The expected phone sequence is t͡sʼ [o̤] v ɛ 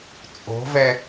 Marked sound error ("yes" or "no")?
no